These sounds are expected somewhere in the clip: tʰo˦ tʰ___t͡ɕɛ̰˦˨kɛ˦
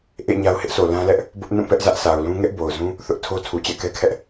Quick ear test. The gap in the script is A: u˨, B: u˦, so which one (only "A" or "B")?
A